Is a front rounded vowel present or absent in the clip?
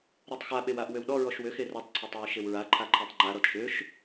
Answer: present